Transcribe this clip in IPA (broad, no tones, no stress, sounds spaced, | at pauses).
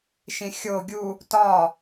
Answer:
ʃ ĩ xʲ o ɡʲ u | t ɒ